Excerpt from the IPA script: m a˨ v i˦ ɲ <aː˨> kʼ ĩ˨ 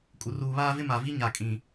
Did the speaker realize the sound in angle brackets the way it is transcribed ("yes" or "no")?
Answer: no